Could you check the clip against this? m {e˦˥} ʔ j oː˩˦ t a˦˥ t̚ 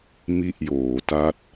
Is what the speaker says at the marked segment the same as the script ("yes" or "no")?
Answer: no